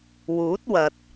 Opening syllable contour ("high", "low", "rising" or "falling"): rising